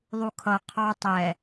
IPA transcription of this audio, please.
ðˤ u kʰ ʌ qʰ ɑ tˤ ɛ

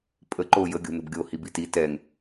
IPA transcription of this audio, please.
pʼ ə ǃ oː j ə ɡʲ o̤ n ə̤ b ɡʲ o h i b i t i t ɛ ŋ

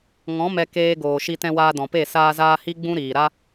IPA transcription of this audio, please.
ŋ ɔ̃˨˦ m ɛ˧ k eː˧ ɡ oː˨ ʃ i˧ t ɛ̃˧ w aː˧ d ɔ̃˨ p e˦˨ s aː˧ z aː˧ h i˦ ɡ͡b ũ˦ ɾ iː˨ ɾ a˦

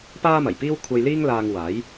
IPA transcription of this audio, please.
p aː˥ m ɐ˨˩ j p iː˥ w kʷʰ ɐ˧ j l iː˥ ŋ l aː˧ ŋ w aː˨˥ j

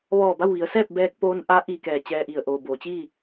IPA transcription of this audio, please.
ʋ ɔː˧˩ b a˥˨ w ʋ i˩˧ ə̯ s ɛː˥˨ p̚ b ɛː˧ k̚ p oː˧ n ʔ a˧˥ ʔ iː˧ k ɛː˧˩ t͡ɕ ɛː˧ ʔ i˩ ə̯ ʔ oː˩ b oː˩˧ t͡ɕ iː˥˨

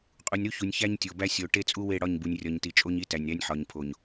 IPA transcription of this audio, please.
qʼ u˨ nʲ ɾ u˦ ç u˨ nʲ ç æ˦ ɲ tʲ o˨ b æ˦ sʲ o˨ ʈ e˦ t͡sʼ u˦ w e˦˨ ɽ ɒ˦˨ ɲ b u˨ nʲ rʲ ɒ˨ ɲ t i˨ t͡ʃʼ o˦ ɲ i˦ t æ˨ nʲ ɾ æ˦ nʲ ħ ɒ˨ ɲ pʰ o˨ ɲ

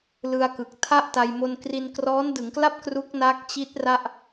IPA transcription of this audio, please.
l ɯ˧ a̯ k ɯ˨˩ k̚ tʰ a˥˩ ʔ t a˧ j m o˧ n k r i˧ n k r ɔː˦˥ n d ɯ˩˦ ŋ k l a˥˩ p̚ k r u˦˥ k̚ n a˦˥ k̚ t͡ɕ i˦˥ t̚ r a˥˩ ʔ

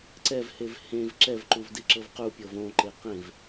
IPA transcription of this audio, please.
ǀ ɛ v h e v h ẽ v ǁ ɛ v ǃ u v d i ǁ ɤ v q u pʲ ɤ v õ ǃ e q ẽ v

